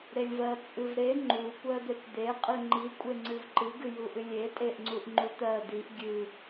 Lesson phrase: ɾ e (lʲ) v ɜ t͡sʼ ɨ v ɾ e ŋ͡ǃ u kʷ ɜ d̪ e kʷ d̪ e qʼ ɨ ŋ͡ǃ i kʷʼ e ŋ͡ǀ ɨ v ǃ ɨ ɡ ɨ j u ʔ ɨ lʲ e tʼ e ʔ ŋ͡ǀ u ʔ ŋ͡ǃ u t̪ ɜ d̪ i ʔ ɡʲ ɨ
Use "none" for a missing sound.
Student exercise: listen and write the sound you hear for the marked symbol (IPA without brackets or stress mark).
lʲ